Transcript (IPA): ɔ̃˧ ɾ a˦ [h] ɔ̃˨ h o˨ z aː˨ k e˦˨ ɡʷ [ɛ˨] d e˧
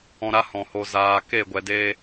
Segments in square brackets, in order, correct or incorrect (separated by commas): correct, correct